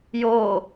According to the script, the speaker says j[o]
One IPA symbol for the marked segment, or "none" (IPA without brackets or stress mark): o